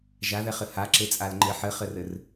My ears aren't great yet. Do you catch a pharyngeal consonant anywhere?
yes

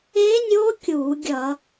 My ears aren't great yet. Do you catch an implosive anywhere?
no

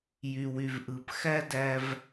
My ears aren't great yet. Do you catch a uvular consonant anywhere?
no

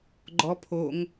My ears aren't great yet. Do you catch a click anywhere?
yes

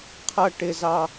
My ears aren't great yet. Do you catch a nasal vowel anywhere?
no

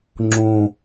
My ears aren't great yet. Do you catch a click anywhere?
yes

